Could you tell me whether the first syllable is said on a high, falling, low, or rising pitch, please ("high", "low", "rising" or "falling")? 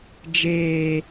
high